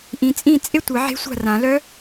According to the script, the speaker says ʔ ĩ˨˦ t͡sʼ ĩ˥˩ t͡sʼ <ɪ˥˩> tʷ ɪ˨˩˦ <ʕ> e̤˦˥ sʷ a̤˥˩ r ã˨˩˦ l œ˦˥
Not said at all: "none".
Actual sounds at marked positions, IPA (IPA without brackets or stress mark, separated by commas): ɪ˥˩, ʕ